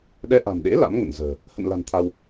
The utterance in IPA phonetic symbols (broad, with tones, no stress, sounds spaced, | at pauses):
ɗ ɛ˧ ʔ a̤˨˩ m ɗ ḛ˧˥ l a̰˧˥ m ŋ ə̰˧˨ n z ə̤ː˨˩ | h ə̰˧˨ n l a̤˨˩ n t̪ʰ a˧ w